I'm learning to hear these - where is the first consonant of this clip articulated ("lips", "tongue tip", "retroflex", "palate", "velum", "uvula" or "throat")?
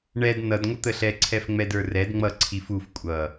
retroflex